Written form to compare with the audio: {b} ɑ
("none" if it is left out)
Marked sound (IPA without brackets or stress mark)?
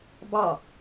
b